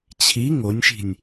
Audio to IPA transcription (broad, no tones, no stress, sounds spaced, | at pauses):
t͡ɕʰ i ŋ o nʲ ʃ i̤ nʲ